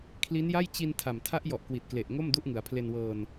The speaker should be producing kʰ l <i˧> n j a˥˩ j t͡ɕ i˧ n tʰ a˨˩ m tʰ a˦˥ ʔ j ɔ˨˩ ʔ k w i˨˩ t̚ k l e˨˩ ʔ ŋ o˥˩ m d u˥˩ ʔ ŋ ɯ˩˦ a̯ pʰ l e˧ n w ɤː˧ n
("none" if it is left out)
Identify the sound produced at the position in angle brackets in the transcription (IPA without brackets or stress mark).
i˦˥